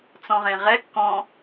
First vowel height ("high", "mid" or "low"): mid